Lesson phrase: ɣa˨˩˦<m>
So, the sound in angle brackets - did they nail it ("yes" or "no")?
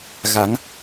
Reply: no